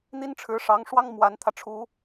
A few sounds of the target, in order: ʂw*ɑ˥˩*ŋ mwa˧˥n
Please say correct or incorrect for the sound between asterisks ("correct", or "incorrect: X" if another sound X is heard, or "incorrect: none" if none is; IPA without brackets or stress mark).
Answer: incorrect: ɑ˥